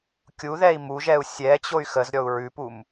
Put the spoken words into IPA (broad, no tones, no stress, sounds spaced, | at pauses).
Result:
kʲ u ð ɛ i̯ m u ʒ ɛ u̯ sʲ ɛ t͡ɕ o y̯ x ə z ɾʲ ɔ u̯ ɹ ʉ p u m